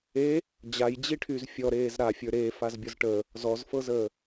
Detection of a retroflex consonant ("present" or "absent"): present